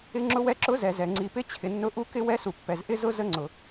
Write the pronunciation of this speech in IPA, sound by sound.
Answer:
ɪ˧˥ŋ͡ǁʊ˧˥wɛ˧˥ ǁʊ˧˥zɛ˩zɛ˩ ŋ͡ǀi˩pɪ˧˥ t͡ɕʰɪ˩nːʊ˧˥ ʔu˧˥kɪ˧˥wɛ˧˥su˩ pːɛ˩z ʔɪ˧˥zʊ˧˥ zə˧˥ŋ͡ǀʊ˩

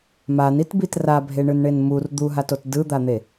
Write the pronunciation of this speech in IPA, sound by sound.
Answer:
manitbit rabʱeɳɯnɳen mur d̪uɦatot dɯd̪an̪e

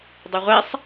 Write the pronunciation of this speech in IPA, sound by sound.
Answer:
dˤɐʁʷɛsˤ

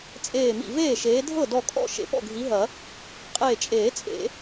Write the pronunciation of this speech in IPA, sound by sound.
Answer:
t͡sʼeː˧˩mḭ˧˩veː˥˩ʃeː˨˦ dʱɤ˥˩dɔ˧˩kʼɔ̰˥˩ ʃḛ˨˩˦pɔ̰˥˩ɡʱi˨˦ɦɐ˨˩˦ | qʼeː˧˩t͡ʃʼeː˨˩˦ t͡sʼḛ˨˩˦

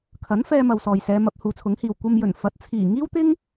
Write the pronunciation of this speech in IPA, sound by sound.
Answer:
kʰɐ˨˥nfɛː˧ mɐ˨wsɔː˨jsɛː˨˧ mɐ˨˥p̚huː˨˥t͡sʰʊ˨˥ŋhiː˨w kʷɐ˧m jɵ˨˩n fɐ˨˥t̚ t͡sʰiː˨˩ ŋiː˥wt̪ɪ˥ŋ

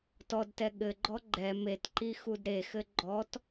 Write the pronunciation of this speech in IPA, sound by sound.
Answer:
tɔdtɛ ɠɘɡ͡ǃɔ ɡ͡ǃɛ metǃi xudɾexɘ ɡ͡ǃɔt

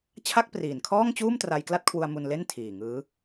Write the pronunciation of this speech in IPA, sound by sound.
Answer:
t͡ɕʰa˥˩k̚priː˨˩nkʰɔː˥˩ŋt͡ɕuː˥˩m tra˧jkla˥˩t̚kʰwu˧a̯ mu˧nle˥˩n tʰiː˨˩ŋɯː˦˥

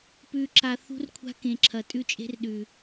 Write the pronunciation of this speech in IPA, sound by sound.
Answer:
pʉ˨ǁa˨ θṳ˦rkʷʰa̤˦kẽ˨ǁʰɐ˨ tʼʉ˦t͡ʃʼe̤˦rɗʉ˨

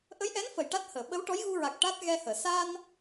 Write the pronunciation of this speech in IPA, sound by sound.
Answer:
ʔə˧˥jʔɛ˧˥nfə˨˩˨j ʈa˦˥t̚həː˨˩˨ ɓə˧˥wʈɔ˧˥jɣu˧ɹa˨˩k̚ ʈa˦˥t̚ ɣɛ˧həː˨˩˨ sa˧n

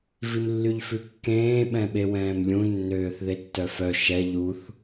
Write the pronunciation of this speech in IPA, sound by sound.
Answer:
vimlːyʎfʉkːẽː ɓɛ̃ɓewɛ̃ːmlʲũ nːøːθðetːœfœ ʃɛ ʎuθ

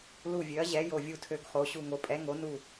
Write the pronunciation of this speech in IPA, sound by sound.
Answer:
lu˧˩vʲø˨˦ɐ̯ʑɛ˨˦ jo˧˩vʲu˧˩tʰø˧˩ɡχo˨˦ ɕu˧˩ŋo˨˦ pʼɛ˨˦ŋo˨˦nu˧˩

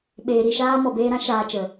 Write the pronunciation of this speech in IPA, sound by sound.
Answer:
ɓeː˨ɾi˦˨ʃaː˦ mɔ˨beː˧ɾã˦ ʃaː˧t͡ʃə˨

